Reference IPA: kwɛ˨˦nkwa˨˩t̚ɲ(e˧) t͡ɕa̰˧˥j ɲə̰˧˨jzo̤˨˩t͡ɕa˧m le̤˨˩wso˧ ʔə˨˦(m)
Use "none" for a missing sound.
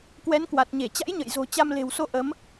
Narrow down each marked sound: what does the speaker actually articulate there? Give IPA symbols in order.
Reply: e˧˩, m

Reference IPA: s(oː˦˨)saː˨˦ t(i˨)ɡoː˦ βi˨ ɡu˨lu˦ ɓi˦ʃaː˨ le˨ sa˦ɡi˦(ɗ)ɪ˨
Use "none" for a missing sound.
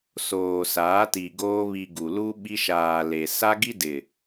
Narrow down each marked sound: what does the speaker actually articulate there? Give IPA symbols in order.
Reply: oː˨, i˨, d

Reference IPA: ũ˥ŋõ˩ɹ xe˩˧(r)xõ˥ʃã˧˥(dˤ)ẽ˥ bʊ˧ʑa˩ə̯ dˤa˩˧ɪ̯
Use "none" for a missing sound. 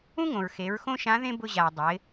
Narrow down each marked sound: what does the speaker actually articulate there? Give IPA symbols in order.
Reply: ɹ, ð

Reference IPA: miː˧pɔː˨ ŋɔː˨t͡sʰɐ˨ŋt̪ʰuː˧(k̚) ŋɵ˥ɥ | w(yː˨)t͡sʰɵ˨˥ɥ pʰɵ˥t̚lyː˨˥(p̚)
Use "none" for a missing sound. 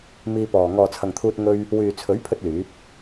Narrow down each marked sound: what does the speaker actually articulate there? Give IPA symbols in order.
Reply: t̚, yː˨, p̚

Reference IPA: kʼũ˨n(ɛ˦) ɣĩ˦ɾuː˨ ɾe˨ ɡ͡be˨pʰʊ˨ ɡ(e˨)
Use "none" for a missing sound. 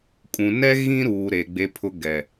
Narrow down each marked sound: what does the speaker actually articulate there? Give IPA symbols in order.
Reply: ɛ˦, ɛ˨

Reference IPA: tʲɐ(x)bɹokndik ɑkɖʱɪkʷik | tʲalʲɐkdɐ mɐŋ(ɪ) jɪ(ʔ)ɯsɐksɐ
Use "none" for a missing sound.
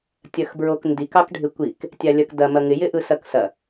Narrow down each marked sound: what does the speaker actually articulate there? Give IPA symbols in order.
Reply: x, ɪ, ʔ

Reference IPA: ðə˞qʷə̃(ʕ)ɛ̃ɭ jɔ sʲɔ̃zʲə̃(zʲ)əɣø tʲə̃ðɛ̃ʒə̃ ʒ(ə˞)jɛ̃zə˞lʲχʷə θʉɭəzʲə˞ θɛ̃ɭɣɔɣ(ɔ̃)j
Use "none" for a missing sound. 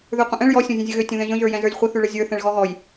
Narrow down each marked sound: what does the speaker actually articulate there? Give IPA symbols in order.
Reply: ʔ, zʲ, ə˞, ɔ

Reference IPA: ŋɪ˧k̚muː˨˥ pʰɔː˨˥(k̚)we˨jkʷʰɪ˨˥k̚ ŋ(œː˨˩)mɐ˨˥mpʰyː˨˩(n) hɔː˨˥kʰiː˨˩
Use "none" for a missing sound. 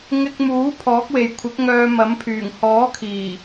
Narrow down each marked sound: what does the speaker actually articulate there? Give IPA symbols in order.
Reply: k̚, œː˧, ŋ

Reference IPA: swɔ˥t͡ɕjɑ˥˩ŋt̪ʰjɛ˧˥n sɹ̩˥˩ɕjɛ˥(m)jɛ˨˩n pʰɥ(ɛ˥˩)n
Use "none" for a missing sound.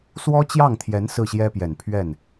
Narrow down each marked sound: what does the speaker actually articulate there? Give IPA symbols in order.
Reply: p, ɛ˥˩

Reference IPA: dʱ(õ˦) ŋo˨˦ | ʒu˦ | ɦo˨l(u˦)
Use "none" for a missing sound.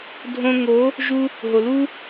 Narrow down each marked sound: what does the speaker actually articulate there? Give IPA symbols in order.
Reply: õ˦, u˦

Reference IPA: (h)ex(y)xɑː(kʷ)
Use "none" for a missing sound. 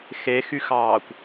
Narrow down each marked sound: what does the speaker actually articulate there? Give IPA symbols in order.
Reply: x, y, kʷ

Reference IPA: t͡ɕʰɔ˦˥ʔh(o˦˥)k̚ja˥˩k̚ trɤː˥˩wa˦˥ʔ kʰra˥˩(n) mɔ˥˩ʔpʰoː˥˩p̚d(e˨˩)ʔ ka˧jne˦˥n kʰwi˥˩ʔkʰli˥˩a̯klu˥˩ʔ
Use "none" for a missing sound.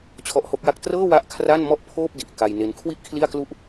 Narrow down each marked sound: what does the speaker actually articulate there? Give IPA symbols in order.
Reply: o˦˥, n, i˨˩

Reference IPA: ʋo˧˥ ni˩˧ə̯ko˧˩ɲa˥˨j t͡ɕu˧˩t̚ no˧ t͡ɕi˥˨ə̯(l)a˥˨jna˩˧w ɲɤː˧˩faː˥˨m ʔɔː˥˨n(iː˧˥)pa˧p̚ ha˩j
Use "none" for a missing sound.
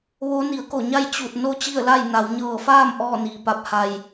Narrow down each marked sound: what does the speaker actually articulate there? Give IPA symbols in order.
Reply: l, iː˩

